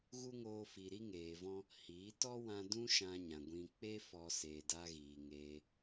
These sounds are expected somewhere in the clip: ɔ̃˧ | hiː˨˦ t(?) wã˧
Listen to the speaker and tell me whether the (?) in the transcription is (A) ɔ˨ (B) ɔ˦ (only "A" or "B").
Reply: B